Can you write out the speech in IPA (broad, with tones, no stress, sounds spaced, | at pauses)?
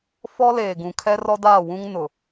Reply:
f ɔ˦ l eː˨ ɡ ũ˨ kʰ ɛ˦ r ɔ˦ d aː˦˨ w ũ˦ ŋ n ʊ˨